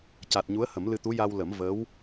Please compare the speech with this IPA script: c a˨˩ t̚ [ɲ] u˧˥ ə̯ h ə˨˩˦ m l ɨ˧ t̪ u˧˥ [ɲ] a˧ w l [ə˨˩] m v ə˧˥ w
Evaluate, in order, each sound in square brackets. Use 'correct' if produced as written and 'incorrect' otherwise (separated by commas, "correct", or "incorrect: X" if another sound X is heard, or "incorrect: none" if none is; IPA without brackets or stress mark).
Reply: correct, incorrect: j, incorrect: ə˨˩˦